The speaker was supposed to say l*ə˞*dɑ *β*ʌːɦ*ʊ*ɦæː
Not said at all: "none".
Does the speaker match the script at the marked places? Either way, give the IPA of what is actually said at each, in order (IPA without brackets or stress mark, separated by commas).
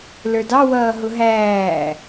ə˞, w, ʊ